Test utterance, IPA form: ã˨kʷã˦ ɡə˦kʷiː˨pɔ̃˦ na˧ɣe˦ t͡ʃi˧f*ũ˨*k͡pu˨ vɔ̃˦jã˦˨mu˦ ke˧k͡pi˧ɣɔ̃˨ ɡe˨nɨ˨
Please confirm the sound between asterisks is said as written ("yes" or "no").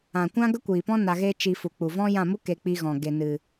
no